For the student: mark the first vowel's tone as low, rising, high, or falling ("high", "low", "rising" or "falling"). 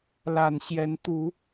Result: low